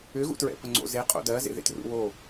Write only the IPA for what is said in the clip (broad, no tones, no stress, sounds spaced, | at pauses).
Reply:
ʏ ɣ ṵ t ɹ ɛ̰ p ə ŋ͡ǀ o̰ z e qʼ o̰ d ɜ z ḛ ð ḛ t r ṵ w o